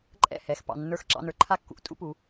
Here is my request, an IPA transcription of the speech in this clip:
ǃʼ ɛ̰˥˩ h ɛ˩˧˩ x p ɑ̰˩˧˩ nː ə˞˥˩ x ǁ ɑ̰˦ n ə˞˩˧ ǃʰ a˦ kː ṵ˦ ʔ tʼ ṵ˦ p u˩˧

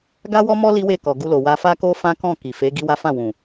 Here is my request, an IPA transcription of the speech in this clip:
ɡ a˦ w ɔ˦ m ɔ˦ l i˦ w e˦˨ k ɔ˨ ɡ u˧ l o˨ w a˧ f a˦ k o˦ f ã˦ k ɔ̃˦˨ k i˨ f e˨˦ ɡ i˦ w a˦ f ã˦˨ w ũ˨

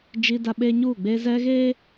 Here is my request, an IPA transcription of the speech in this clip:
d͡ʒ i˦ d a˦ ɓ eː˦ ɲ uː˦˨ ɡ͡b e˦ z ɛ˦ ɣ eː˦

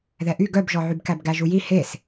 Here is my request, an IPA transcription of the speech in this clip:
ð ɛ ʔ y ɡ œ b ʒ ɔ ʕ y b k æ b ɡ æ ʒ u j i h e s

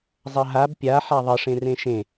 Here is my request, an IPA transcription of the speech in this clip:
zˤ ɐ ɦ a b pʲ a ħ a ðˤ ə ʂ ẽ r ẽ ʃ ẽ

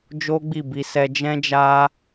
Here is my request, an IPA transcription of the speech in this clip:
d͡ʒ o˦ ɡ͡b i˦˨ b i˧ s ɛ˧ d͡ʒ ɛ̃˦ d͡ʒ a˦

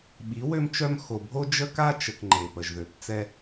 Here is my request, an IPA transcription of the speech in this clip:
ɓ i˨˦ w ø˦ m t͡ʃ œ˦ m x o˨ bʱ o˦ d͡ʒ ə˦ k a˦ t͡ʃ ə˨ k ŋ͡ǃ e˨ p ə˨ ʒ ð ø˨ p t͡s ɛ˦

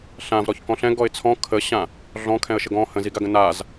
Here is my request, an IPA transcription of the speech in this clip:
ɬ ã v ɾ ɔ ç k ɔ̃ ɬ ɛ̃ ɡ ɔ ɪ̯ t͡sʰ ɔ̃ kʰ ə ɕ ã | ɮ ɔ̃ kʰ ɛ̃ ə̯ ʃ ə ɡ ɔ̃ h ə̃ z i ɡ a ɡ ə̃ n a z

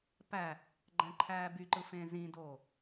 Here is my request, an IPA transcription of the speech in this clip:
p æ | ɡ͡ǃ æ̃ ǃʰ æː b y ǃ ɯ f ẽ z ĩ d oː

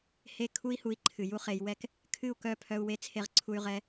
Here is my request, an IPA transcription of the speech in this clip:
h e˦˨ kʰ u˦ i̯ h u˧ i̯ ǃʰ ɨ˨ j u˦ χ e˧ j w ɛ˦ k | kʰ ɨ˦˨ u̯ k œ˦˨ pʰ œ˧ u̯ w e˧ t͡sʰ e˧ ʁ ǀʰ u˧ y̯ ʁ ɛ˧

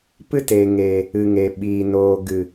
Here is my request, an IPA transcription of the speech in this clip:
p ɨ˦ t e˨ ŋ eː˨ | ɨ˨ ŋ e˨ ɓ iː˨ n oː˨ ɡ ɨ˨

